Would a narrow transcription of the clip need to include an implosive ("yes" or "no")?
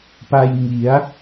no